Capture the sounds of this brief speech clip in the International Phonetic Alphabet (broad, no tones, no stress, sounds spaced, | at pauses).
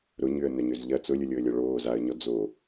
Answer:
ɾ ʊ ɲ ʏ ə̯ n œ ɲ ø z ʎ ɐ t͡s ʊ lʲ ʊ lʲ o ə̯ lʲ ɔ ɭ oː z a ə̯ ɲ ɔ d͡z o